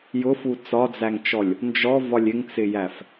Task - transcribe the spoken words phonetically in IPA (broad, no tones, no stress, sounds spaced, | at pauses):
j ʊ f u t͡s ɒ d͡z æ ŋ t͡ʃ ɔ lʲ | n d͡ʒ ɔ v ɒ lʲ ɪ ŋ t͡s ɪ j æ f